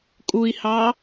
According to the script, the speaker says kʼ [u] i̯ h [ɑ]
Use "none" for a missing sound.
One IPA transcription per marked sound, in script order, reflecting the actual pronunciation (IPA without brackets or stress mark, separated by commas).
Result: u, ɑ